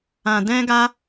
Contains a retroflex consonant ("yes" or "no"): no